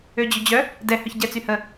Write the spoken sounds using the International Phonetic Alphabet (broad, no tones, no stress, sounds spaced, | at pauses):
ø d͡ʑ ø d͡ʑ œ | d ɛ h œ ç ɟ ɛ t͡s y h ə